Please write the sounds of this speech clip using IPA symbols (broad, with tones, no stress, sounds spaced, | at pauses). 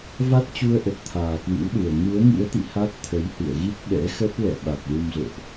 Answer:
v a˦˥ t̚ t͡ɕ u˧ ə̯ ʔ ə˨˩ t̚ t̪ʰ aː˨˩ k w ḭ˧˥ w ɗ u˨˩ ə̯ ŋ u˨˦ ə̯ ŋ ḭ˧˥ ə̯ t̪ ḭ˧˨ h a˦˥ t̚ t̪ʰ ə˨˦ j h ɨ̰˧˨ ə̯ ɣ i˦˥ t̚ ɓ ɛ̰˧˥ x ə˦˥ t̚ l ɛ̰˧˨ ɓ a˨˩ k̚ l u˧ m z o̰˧˨ ʔ